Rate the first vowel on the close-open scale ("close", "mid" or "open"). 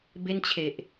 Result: mid